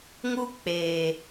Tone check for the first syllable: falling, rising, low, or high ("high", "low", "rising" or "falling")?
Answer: high